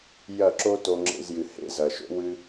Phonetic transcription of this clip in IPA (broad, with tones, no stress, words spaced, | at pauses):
jɐ˦˨ ǁo˦to˧ŋ͡ǁḛ˧zjɨ˨ hḛ˦zɐ˨ʃo̰˦ wɨ˦